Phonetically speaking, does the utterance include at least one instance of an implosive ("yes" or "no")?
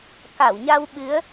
yes